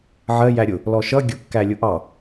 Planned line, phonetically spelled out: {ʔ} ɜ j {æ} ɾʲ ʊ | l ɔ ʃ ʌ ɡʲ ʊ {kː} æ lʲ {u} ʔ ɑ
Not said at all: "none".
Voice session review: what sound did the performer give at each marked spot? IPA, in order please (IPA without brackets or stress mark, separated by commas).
ʕ, æ, kː, ʊ